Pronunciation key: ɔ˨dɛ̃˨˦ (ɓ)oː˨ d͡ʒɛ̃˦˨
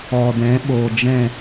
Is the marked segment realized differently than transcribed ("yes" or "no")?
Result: no